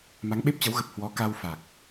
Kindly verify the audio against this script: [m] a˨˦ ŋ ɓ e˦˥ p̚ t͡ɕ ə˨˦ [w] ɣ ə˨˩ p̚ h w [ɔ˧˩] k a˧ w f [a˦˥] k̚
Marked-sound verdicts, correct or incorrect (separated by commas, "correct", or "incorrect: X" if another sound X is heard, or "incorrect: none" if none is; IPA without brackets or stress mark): correct, correct, incorrect: ɔ˨˦, incorrect: a˨˩